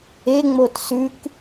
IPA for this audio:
e ŋ͡m o t s ʉ k

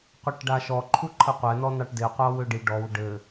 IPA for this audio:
qʷ e ʈ ɖ a ʃ ɔ ǃʰ u ǃʰ ɘ qʷ ɛ n ɔ n ɑ ʈ d e qʷ ɑ w ø ɖ i ɖ ɔ w ɖ ɘ

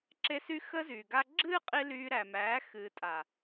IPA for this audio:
ǁ e˧ s y˦ x əː˦ z yː˨ ɡ a˧ ɡ͡ǁ ɨː˦ qʼ i˧ l yː˧ ɾ æ˨ m æː˨˦ x ɨː˨ tʼ a˨

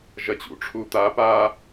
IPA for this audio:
ʒ ɐ t͡ɕ ṵ ʈ͡ʂʰ u t̪ a p a

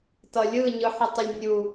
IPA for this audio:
t ʌ lʲ ɯ ɲ ɯ ħ ə tˤ ə lʲ nʲ u

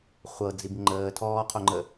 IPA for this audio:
χʷ ɤ d͡z i b ŋ͡ǃ əː tʰ ɔː qʰ o ŋ͡ǃ ə

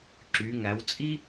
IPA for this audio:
ǁ y˩˧ ŋ æ˩˧ w t͡sʼ i˥

